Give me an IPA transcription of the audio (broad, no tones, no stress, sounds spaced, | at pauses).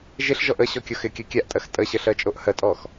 ʒ ɪ ɬ ʒ ɔ ʔ ə ɕ ɔ kʲ ɔ x ɪ kʲ ɜ kʲ a ʔ tʼ ɜ x tʼ ə ɕ ə ɬ ɜ t͡ʃʼ o ʔ h ɜ tʼ ɔ x